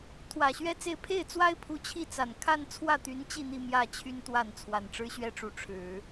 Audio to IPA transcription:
t̪ʰ w ä˨˩ ɕ ɥ ɛ˥ t͡s e˥˧ ɪ̯ pʰ e˥˩ ɪ̯ t͡s w a˥ ɪ̯ pʰ u˧˥ t͡ɕʰ i˥˩ t͡s a˨˩ n kʰ a˥˧ n t͡sʰ w ä˥˩ t̪ y˧˥ n t͡ɕ i˥˧ n̪ i˥˧ m j ä˥˩ t͡ɕʰ y˥ n t̪ w a˥˩ n t͡sʰ w a˨˩ n ʈ͡ʂ ɻ̩˥ ɕ ɥ ɛ˥ ʈ͡ʂ u˧˥ ʈ͡ʂʰ ɻ̩˨˩˦

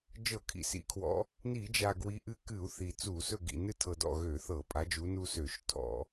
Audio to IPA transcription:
d͡ʒ ɤ˧˩˧ kʰ ḭ˨˩ s ḭ˨˩ kʰ w ɔ̰˨˦ | n i˧˩˧ d͡ʒ a˨˩ ɡ w i˨˦ ʔ ɨ˦ k ɨ˧˩˧ u̯ θ i˨˩ t͡s u˧˩˧ s ɵ˥˨ ɡ ḭ˨˩ n ɨ˦ tʰ ɤ˨˩ d ɔ̰˥˨ ɣ ø˧˩˧ θ ɤ˧˩˧ pʼ a˨˦ d͡ʒ u˨˦ n u˦ s ø˧˩˧ ʃ tʰ ɔ̰˧˩˧

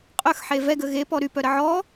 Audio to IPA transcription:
qʼ œ x ħ e v ɛ ɡ ə ɣ e p ɔ ɾ y p œ ɾ ə ʕ ɔ

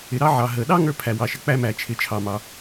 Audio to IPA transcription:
ɪ˩ ɾ ɑ˥ ʕ ɑ˩ ɦ ə˩ ɗ ɑ˥ ŋ ə˞˥ pʰ æ˩ w ɑ˩ ʃ ɪ˩ k͡p æ˥ m æ˩ t͡ʃʰ ɪ˩ t͡ʃʰ ɑ˩ m ɑ˩

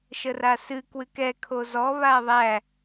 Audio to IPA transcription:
ʃ ə r a s ɨ k w ɨ k ɛ kʰ o z ɔ β aː ðˤ æ

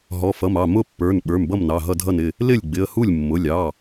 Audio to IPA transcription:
ɦ ɔ˩˧˩ f ʌ˩˧˩ m ɑ˩˧˩ m ʊ˥˩ pː ə˞˩˧˩ n ɓ ə˞˩˧˩ m b ʌ˥˩ m n ɑ˩˧˩ ɦ ʌ˥˩ dʱ ʌ˥˩ n ɪ˥˩ | l ɪ˥˩ lʲ ɡ͡b ɪ˩˧˩ ə̯ h u˥˩ lʲ mː ʊ˩˧˩ lʲ ɑ˩˧˩

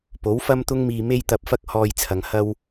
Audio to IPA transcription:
p o˨˥ w f ɐ˥ m t̪ ʊ˥ ŋ m iː˧ m e˥ j t̪ ɐ˧ p̚ f ɐ˥ k̚ h ɔː˧ j t͡sʰ ɐ˨ ŋ h ɐ˥ w

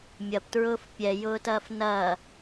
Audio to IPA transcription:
mʲ ɐ p t ɹ ʊː f pʲ ɛ j ʊː t ɐː f n ɐ

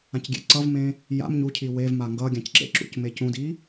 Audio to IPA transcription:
ã c ɡʲ ḛ ǀ ʌ v m ẽ | j a̰ m ɲ u cʰ i w e v m a ŋ ɡ ʌ ɡʲ ã c ǁ ḛ ǁ ṵ c m e c ũ d i

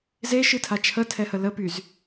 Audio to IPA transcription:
z e ʃ ɨ tʰ a t͡ʃʰ ə tʰ ɛ h ə l ə p y z

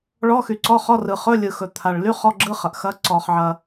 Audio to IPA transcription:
ɭ ɔ˧˥˧ x y˩ ǀ ɔ˧˥˧ χ ɔ˧˥˧ r ɯ˩ χ ɵ˧˥˧ lʲ ɯ˩ x ɵ˩ t̪ʰ a˩ ɭ l y˧˥˧ χ ɔ˧˥˧ ɡ͡ǁ ɯ˧˥˧ χ ɐ˩ ʔ x ɐ˧˥˧ ǀ ɔ˩ χ ʕ ɐ˩

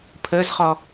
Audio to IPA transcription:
pʰ əː z χ ɔ

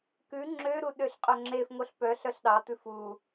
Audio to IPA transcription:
k ʉ ŋ͡ǁ ø ɾ u ɗ ø ɬ qʼ œ ŋ͡ǁ e f ŋ o ɬ p œ ɬ œ ɬ ɗ ɑ t̪ ʉ f u

